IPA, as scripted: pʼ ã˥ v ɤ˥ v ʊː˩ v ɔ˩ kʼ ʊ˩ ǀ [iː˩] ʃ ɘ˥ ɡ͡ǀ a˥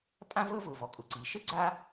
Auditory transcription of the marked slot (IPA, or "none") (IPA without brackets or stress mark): iː˩